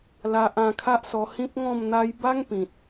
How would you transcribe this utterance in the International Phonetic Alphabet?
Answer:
l a˨ ʔ ã˧ kʰ a˦ ʔ s ɔ˧ h ĩ˦ p̚ ŋ ɔ̃˥˧ m n̪ a˦ j b a˦ ŋ p ĩ˨ t̚

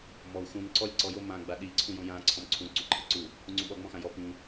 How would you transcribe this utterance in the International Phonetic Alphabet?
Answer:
m ɔ u̯ x ũ n ǀ ɔ lʲ ǀ ɔ j o m ã ɡ͡b a ɗ i ǀʰ ũ j õ j ã ǀʰ ɔ̃ m ǀʰ ũ ǀ u ǃʰ e ǀ u | p ũ ŋ͡ǀ ũ ɓ ɔ ŋ͡m ɔ̃ x ã j ɔ p ĩ

